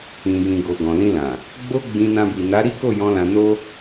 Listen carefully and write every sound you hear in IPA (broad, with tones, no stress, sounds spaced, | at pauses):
ĩ˨ j ĩ˨ ɡ o˨ ɡ ɔ̃˨ l ĩ˧ l ã˨ | ɡ͡b o˦ ɡ͡b ĩ˧ n ã˧ b i˨ n a˨˦ ɾ i˦ k o˦˨ j ɔ̃˧ l ã˧ n o˦